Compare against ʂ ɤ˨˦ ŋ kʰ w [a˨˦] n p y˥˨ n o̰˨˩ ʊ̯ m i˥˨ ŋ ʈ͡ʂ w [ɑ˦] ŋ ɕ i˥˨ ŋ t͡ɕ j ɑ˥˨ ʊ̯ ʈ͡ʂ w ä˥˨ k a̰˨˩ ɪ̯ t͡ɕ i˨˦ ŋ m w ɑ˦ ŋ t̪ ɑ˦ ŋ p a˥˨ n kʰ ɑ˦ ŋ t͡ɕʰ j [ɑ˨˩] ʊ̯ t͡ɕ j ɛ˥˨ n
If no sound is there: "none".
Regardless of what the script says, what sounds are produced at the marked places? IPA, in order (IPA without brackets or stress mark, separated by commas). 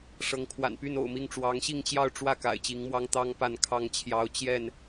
a̰˨˩, ɑ˨˦, ɑ˦